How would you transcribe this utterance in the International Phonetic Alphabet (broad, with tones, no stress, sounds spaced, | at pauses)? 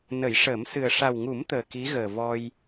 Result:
n ə˨˩˦ j ʂ əː˨˩˦ m s ɨ˨˩ ə̯ ʂ a˨˩ w ŋ u˨˩˦ m t̪ əː˨˩ k i˧˥ ɣ əː˨˩ v ɔ˧ j